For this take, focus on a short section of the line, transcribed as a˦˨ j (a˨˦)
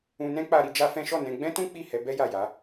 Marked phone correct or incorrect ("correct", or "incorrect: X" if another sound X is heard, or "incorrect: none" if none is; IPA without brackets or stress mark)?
correct